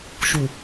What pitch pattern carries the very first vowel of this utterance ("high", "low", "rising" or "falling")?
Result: low